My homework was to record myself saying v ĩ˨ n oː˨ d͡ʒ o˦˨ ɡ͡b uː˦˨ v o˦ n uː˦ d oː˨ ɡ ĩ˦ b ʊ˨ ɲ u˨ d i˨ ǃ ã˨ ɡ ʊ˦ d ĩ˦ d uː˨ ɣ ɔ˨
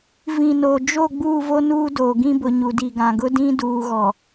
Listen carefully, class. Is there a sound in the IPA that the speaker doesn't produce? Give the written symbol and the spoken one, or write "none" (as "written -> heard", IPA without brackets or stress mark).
ǃ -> ɡ